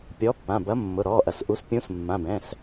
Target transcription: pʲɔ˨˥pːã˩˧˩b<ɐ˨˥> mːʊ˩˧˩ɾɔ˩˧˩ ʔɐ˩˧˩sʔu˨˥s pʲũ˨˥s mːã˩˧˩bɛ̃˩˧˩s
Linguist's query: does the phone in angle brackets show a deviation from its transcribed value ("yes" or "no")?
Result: no